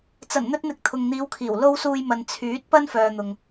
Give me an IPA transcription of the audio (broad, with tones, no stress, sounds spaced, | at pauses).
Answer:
t͡s ɐ˨˩ n n̪ ɵ˧ t̚ n̪ ɪ˨ k̚ t̪ʰ ʊ˨ ŋ n̪ iː˨˧ w kʰ iː˨˩ w l o˧ w s uː˧ j m ɐ˨ n t͡sʰ yː˨˥ t̚ p ɐ˥ n f œː˨ n̪ ʊ˨ ŋ